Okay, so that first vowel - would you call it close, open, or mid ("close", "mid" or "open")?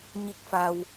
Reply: close